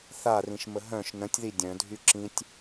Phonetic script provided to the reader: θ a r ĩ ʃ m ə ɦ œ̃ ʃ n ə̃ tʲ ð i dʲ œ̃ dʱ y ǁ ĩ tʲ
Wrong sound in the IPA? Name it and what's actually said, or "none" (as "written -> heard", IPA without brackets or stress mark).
none